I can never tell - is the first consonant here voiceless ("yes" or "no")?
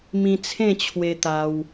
no